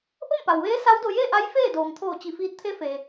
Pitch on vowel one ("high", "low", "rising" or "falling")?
falling